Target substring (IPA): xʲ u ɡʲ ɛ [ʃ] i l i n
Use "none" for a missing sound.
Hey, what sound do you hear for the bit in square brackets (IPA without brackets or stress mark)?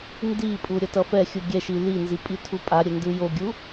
ʃ